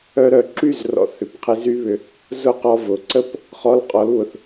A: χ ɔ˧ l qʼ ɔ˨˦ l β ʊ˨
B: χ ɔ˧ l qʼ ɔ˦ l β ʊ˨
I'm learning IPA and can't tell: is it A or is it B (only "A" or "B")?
A